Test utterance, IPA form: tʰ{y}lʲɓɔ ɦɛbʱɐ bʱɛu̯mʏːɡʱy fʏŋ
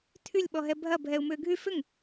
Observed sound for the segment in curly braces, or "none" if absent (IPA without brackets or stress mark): y